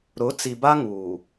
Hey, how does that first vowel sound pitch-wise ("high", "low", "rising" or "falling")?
rising